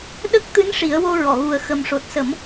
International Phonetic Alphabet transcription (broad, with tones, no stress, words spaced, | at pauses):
ɗə˦˥k̚ t̪ɨ˧˥n ʂi˨˩˦ə̯wo˧ ɹɔ˨˩˨ɣu˨˩ə̯ xə˨˩mʂo˨˩t̚sə˨˩˦m